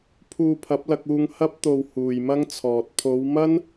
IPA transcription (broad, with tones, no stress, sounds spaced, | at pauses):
pʰ uː˧ pʰ ɐ˨˥ p̚ l ɐ˧ k̚ uː˧ ŋ h ɐ˥ p̚ t̪ o˧ w h uː˨ j m ɐ˥ ŋ t͡sʰ ɔː˨ t̚ pʰ o˨˧ w m ɐ˥ n